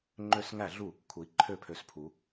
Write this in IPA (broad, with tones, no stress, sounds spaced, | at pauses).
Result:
ŋ͡ǃ ø˧˩˧ s ŋ æ˧˩˧ ɮ u˧˩˧ | kʰ u˩˧ i̯ ǃʰ ø˧˩˧ pʰ ø˩˧ s pʰ u˩˧